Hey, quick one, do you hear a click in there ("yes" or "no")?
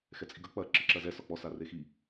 yes